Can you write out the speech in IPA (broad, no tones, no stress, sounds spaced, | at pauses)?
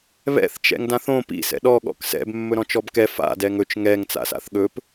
β ɛ̰ θ t͡ʃ ɛ̰ ŋ d ã θ õ p ḭ s ɛ̰ ɗ ɔ ɠ ɔ̰ k s ɛ̰ b mː ɵ ɾ ɔ̃ t͡ʃ ɔ b k ɛ f a̰ d ɛ ŋ ɵ t͡ʃ ŋ ɛ ŋ t͡s a̰ s a̰ θ ɠ ɵ p